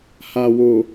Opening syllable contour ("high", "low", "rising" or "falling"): low